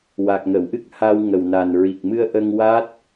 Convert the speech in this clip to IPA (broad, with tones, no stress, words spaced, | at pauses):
wa˨˩k̚ŋə˨˩˨wʔɨ˦˥k̚ha˧w ŋə˨˩wna˨˩n ɹi˨˩k̚mɨ˧ə̯ ʔə˧ŋwa˦˥t̚